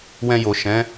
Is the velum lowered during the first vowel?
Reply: yes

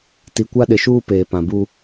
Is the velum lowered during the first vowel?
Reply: no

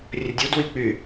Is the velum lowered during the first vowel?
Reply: no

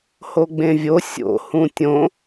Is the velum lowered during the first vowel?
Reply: no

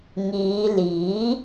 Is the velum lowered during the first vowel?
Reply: no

